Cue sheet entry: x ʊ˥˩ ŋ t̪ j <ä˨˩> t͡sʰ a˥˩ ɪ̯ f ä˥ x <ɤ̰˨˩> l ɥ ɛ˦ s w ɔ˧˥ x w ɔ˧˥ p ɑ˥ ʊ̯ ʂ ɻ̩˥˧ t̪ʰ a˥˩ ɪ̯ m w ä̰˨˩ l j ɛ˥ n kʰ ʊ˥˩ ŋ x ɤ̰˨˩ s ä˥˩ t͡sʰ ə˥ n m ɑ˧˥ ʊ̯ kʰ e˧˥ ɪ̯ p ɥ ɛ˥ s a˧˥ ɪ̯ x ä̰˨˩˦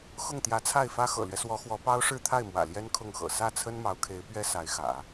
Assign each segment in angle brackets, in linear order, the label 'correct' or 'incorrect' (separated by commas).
incorrect, correct